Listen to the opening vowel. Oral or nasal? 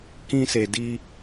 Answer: nasal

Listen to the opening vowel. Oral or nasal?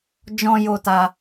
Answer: nasal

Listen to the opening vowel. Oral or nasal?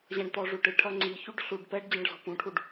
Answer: nasal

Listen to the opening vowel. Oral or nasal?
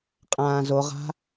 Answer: nasal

